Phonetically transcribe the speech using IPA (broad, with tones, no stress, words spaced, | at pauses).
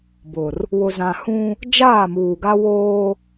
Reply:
bʊ˨r | wʊ˨zã˨hũ˦ | d͡ʒaː˦˨muː˨ɡa˦woː˦